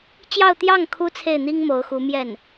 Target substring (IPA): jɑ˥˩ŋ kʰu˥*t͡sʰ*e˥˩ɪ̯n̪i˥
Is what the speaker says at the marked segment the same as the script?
yes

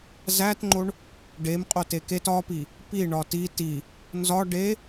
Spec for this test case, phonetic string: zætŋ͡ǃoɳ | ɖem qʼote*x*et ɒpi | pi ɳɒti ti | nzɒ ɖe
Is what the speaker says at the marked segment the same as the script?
no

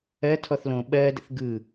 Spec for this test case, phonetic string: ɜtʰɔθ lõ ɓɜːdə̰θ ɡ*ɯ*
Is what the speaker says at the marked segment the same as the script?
yes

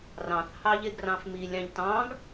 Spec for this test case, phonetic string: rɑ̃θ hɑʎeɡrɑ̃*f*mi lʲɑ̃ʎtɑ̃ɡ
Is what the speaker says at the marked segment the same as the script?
yes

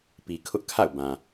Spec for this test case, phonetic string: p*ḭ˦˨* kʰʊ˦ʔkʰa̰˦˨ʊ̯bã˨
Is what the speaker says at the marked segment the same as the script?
no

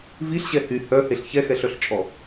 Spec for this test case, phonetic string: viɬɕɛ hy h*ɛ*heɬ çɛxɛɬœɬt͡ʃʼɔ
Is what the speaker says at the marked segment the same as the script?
no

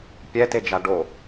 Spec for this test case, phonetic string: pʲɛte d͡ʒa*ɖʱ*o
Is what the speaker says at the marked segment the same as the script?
no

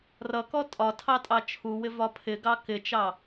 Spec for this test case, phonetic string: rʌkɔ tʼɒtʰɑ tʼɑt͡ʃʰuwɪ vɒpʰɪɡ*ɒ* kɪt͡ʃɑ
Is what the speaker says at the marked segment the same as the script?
no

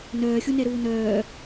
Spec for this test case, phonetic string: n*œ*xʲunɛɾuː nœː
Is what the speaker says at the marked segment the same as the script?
no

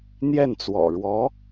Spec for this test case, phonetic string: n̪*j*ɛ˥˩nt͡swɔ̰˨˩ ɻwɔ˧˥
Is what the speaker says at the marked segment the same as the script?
yes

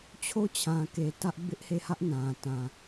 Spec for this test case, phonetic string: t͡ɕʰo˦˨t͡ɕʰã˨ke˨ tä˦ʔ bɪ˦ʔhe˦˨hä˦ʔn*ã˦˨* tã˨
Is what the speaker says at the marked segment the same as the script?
no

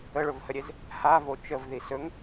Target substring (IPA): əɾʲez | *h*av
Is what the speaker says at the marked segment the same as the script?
yes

